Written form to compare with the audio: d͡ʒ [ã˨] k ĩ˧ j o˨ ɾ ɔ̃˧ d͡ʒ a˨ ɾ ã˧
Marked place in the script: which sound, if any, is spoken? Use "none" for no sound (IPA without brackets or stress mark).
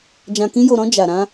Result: ã˨